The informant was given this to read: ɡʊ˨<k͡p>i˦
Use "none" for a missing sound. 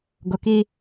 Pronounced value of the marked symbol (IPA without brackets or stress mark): k